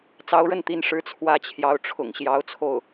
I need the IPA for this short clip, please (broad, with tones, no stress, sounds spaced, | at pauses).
t͡s ɑ˧˥ ʊ̯ ɻ ə˥˩ n t̪ i˧˥ n ʂ ɻ̩˧˥ t͡sʰ w ä˥˩ t͡ɕʰ j ɑ˧˥ ʊ̯ ʈ͡ʂʰ ʊ̰˨˩ ŋ ɕ j ɑ˧˥ ʊ̯ t͡sʰ o˥˩ ʊ̯